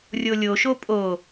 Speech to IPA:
rʲolʲoʃo pʼo

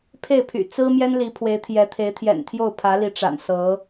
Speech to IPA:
pʰe˥˩ɪ̯pʰy̰˨˩ t͡sɹ̩˥mjɛ˥n li˧˥ pʰwe˧˥ɪ̯t̪ʰjɛ˧˥t̪ʰe˧˥ɪ̯ t̪ʰjɛ̰˨˩nt̪ʰjo˥˩ʊ̯pʰä˧˥li˧˥ ʈ͡ʂa̰˨˩n sɤ˧˥

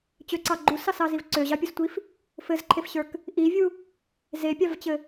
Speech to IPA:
t͡ɕøǀɑ ɡ͡ǃusɑsɑziv ǀøʑɑpʲustʷif | fɘzǃʰefɕə˞k | ʔivʲu | zepʲɑvt͡ɕɘ

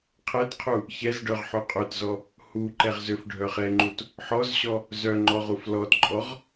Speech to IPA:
qʰɛtqʰu | çɛzɖœʁ ħøqʼøtzɔ | huǃɛʁ zøfɖʱœχɛŋ͡ǃut | ħɔzɕɔ | zœŋ͡ǃɔʁ uflɔtǃʼɔʁ

